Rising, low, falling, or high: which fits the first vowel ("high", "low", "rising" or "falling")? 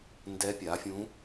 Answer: rising